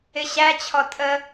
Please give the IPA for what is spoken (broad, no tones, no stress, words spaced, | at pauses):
ɪɕæt͡ɕʰɔ tʼə